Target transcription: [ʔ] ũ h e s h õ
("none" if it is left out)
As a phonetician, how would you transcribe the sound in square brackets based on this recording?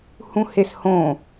h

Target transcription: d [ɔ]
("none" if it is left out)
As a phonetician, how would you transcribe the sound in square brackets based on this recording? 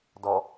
ɔ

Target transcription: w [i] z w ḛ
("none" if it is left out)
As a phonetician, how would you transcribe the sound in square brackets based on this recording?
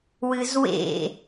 ɨ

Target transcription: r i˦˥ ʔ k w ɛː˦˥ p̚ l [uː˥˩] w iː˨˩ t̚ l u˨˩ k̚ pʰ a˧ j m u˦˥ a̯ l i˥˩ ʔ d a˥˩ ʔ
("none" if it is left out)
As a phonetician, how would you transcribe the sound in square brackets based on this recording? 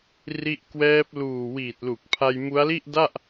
uː˨˩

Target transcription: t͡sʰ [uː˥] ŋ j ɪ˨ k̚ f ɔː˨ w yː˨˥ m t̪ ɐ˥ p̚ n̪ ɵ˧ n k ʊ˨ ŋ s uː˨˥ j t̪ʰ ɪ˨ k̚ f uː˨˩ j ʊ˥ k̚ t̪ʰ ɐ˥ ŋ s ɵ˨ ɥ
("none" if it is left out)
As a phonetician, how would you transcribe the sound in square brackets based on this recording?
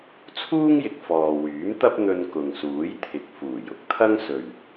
uː˥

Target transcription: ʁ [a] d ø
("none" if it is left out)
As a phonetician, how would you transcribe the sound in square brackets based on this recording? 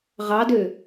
ɑ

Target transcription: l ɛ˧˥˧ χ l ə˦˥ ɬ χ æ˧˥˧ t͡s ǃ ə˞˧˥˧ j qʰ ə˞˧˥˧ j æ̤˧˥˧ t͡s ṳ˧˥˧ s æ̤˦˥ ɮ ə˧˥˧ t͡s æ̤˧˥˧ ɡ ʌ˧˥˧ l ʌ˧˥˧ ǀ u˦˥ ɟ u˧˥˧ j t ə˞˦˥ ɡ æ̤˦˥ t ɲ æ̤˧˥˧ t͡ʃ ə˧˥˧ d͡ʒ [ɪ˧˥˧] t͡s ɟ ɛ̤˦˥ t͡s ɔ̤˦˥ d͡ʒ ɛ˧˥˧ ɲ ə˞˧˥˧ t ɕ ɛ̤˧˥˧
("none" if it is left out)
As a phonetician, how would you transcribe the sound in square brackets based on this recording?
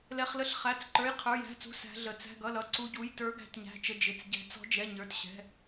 ɪ˧˥˧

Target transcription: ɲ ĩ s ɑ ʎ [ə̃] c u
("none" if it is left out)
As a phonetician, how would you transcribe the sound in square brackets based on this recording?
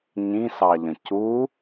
ə̃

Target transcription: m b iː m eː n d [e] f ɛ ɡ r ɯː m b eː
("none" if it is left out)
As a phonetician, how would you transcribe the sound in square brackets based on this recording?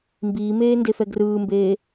e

